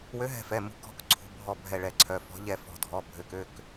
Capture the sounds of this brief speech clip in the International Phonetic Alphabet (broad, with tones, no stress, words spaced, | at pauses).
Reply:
wø˨˦ɦɛ̤˧˩fɛ˩˧˩mṳ˨˦ kɔ̤˨˦kǀʰṳ˩˧˩bʱɔ˧˩ bʱɛ˧˩ɭɛ˧˩ǀʰœ˩˧˩fɔ̤˨˦ ʎɛ˧˩ fɔ̤˧˩dʱɔ˩˧˩ bʱø˩˧˩kø˩˧˩k